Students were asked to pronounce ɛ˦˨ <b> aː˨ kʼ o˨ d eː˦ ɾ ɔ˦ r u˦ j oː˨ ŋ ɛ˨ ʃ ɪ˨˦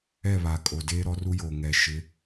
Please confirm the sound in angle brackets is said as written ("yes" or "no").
no